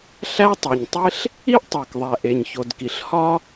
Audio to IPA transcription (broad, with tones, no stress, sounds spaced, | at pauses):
ɬ æ˥ tˤ e˩ ɲ tˤ e˥ ɬ | i˥ ʔ tˤ æ˩ k ðˤ æ˩ ʔ e˩ ɲ ç o˩ d k i˩ ɬ h ɒ˥